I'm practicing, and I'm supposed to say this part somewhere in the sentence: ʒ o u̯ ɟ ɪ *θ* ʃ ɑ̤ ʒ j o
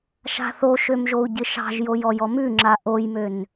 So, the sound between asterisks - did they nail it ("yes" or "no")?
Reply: no